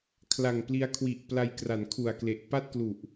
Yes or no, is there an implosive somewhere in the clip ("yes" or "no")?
no